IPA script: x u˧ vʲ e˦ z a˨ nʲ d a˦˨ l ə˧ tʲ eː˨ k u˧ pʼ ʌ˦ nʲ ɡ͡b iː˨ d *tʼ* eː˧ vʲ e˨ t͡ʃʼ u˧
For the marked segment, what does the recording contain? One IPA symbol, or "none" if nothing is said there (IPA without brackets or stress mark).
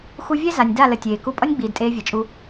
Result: tʼ